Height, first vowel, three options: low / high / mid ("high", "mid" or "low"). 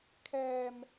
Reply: mid